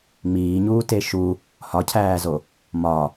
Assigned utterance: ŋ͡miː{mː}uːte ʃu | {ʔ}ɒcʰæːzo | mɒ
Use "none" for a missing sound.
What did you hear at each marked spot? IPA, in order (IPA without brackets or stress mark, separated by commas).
ɲ, h